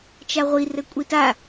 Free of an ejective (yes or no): no